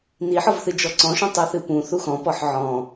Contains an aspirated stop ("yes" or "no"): no